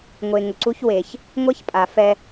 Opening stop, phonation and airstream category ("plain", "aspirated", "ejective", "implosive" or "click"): click